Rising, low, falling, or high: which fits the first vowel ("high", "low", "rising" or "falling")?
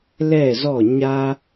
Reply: falling